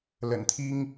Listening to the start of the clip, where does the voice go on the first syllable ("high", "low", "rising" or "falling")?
low